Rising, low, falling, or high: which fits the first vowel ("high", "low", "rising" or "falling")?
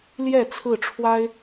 falling